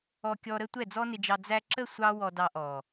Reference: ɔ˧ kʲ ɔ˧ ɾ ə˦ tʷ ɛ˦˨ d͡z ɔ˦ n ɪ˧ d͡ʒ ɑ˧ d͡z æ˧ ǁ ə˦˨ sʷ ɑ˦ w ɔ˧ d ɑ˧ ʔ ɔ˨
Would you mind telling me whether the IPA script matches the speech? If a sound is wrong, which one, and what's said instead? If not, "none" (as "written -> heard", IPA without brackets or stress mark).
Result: none